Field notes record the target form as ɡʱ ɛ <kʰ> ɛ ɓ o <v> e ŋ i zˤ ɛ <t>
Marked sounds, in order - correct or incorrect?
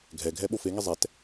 incorrect, incorrect, correct

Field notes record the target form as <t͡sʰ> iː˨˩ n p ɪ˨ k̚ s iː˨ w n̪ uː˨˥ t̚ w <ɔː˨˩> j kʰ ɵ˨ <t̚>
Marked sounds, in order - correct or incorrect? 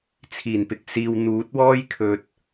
correct, incorrect, correct

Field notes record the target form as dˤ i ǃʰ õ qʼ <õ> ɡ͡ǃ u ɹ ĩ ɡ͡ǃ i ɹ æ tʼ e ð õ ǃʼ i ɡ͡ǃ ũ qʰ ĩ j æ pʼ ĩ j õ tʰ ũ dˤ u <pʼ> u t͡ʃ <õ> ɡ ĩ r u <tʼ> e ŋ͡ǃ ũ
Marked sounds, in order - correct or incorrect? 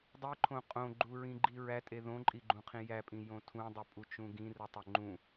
correct, correct, incorrect, incorrect

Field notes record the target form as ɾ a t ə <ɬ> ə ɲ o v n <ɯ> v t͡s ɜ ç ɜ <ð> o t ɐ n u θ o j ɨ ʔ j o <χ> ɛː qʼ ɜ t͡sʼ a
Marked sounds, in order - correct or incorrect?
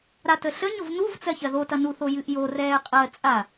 correct, incorrect, correct, incorrect

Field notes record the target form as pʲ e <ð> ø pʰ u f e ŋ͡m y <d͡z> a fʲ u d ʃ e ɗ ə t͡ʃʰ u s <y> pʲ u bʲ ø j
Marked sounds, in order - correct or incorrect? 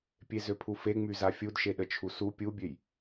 incorrect, incorrect, incorrect

